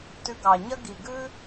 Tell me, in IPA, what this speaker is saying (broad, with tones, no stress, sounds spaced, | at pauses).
t ʉ˧ ɡ ɑ˨ ɲ ɐ˦ ɡ i˨ ɡ ʉ˦